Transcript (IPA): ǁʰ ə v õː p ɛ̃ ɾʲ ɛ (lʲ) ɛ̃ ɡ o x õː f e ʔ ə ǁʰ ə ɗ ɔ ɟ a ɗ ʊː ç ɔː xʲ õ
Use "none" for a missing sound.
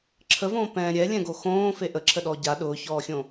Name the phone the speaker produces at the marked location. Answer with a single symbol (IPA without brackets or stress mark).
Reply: lʲ